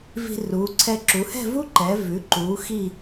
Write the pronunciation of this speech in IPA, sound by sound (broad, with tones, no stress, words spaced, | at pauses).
vi̤˧ruː˩˧ǀʰɛ˧ ǁu˩˧hɛ̤˥˧vu˥ǃɛː˩˧ vʉ˩˧ǃuː˩˧ xi˥˧